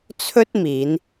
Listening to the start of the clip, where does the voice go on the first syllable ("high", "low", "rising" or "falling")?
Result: high